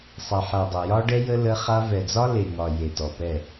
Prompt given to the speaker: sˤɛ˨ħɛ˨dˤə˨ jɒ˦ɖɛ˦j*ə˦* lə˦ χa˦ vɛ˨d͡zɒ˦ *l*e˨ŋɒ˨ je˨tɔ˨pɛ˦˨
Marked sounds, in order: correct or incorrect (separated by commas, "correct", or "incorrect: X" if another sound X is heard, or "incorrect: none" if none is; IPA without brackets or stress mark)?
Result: correct, correct